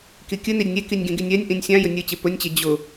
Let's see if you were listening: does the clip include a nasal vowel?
yes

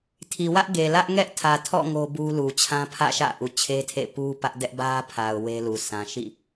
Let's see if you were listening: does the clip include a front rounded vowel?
no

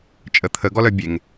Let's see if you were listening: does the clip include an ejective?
yes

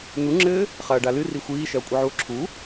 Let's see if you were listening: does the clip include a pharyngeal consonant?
yes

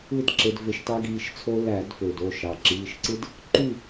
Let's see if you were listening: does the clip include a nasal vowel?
no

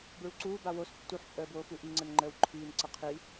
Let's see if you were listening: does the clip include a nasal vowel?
no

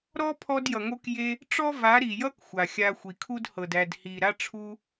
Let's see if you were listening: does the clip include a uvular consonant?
no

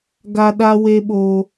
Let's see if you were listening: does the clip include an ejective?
no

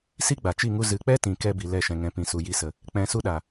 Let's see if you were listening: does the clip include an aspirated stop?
no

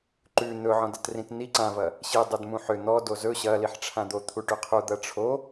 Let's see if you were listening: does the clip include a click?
yes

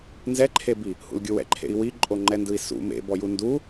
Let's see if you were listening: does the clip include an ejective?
yes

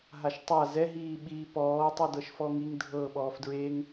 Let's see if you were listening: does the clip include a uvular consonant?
no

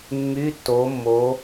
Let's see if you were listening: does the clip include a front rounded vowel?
yes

